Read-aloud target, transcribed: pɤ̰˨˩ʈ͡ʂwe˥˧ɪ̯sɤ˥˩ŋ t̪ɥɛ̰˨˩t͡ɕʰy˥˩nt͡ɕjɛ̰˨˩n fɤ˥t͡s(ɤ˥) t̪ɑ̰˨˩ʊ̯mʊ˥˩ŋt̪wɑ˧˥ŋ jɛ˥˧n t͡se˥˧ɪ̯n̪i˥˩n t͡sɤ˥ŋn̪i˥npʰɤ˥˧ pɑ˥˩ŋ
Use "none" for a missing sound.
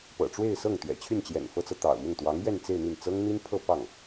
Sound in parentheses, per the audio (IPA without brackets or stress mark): ɤ˨